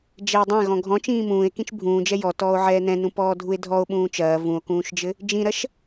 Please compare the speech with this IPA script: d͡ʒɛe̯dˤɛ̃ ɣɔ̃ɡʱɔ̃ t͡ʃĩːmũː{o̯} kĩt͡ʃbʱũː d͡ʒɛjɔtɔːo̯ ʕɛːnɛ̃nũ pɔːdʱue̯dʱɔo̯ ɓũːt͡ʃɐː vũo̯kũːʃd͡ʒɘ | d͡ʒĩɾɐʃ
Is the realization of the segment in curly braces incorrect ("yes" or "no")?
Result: yes